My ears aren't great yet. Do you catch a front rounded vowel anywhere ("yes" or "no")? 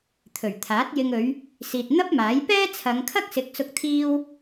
no